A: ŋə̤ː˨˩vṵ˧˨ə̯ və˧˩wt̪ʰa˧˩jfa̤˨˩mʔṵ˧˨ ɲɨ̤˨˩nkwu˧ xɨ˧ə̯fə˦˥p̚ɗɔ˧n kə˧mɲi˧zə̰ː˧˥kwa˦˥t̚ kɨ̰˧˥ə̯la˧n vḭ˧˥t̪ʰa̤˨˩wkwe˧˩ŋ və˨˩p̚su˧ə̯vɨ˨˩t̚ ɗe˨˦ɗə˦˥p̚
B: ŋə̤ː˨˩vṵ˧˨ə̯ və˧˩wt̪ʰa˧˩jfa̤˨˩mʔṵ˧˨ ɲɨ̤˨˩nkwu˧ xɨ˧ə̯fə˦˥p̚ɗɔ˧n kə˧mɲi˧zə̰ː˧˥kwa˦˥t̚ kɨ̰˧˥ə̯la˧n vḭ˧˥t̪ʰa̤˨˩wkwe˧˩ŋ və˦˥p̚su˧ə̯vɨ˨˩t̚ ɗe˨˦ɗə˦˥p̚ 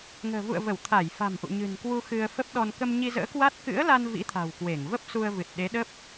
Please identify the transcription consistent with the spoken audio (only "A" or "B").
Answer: B